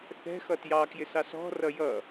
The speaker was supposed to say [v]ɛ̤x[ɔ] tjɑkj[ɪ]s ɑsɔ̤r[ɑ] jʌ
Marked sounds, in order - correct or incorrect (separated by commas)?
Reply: incorrect, incorrect, correct, incorrect